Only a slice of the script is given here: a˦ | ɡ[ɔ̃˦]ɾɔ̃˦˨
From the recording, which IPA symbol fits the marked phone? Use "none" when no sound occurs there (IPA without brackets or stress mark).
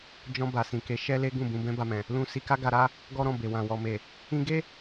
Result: ɔ˦